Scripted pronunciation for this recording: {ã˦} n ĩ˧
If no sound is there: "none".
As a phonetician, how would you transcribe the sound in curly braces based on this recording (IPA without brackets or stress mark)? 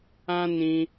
ã˦